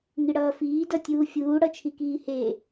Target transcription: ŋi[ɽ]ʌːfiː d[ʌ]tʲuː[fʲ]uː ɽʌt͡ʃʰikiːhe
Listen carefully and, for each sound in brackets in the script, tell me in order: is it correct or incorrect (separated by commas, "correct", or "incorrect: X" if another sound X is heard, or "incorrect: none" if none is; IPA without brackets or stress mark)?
correct, correct, correct